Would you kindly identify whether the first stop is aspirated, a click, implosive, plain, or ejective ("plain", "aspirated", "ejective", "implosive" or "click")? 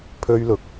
aspirated